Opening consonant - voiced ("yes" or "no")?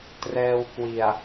no